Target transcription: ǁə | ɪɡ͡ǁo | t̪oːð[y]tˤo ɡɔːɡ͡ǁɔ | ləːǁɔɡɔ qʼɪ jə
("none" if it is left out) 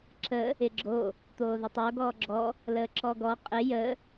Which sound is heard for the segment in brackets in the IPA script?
ɪ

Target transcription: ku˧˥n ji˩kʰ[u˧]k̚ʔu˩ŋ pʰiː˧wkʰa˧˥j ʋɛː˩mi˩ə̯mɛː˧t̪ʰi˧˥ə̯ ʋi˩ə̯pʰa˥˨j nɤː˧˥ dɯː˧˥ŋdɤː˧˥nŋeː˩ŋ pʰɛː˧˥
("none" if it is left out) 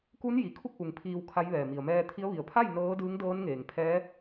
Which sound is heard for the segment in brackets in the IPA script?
u˥˨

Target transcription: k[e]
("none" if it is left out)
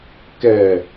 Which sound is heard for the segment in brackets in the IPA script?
ɛ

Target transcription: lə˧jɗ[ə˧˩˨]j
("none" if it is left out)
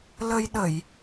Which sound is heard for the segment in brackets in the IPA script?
ə˧˩˨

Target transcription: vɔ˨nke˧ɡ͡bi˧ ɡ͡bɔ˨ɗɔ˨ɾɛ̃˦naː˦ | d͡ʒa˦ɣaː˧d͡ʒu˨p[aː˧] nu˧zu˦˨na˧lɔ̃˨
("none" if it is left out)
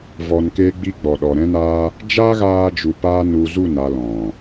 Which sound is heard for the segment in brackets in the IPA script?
aː˧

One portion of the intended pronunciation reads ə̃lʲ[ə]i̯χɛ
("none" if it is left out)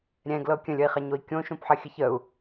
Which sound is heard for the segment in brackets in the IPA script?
ə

